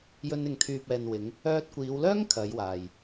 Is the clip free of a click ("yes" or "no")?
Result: yes